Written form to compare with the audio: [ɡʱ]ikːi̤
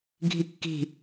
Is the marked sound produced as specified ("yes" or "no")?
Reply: yes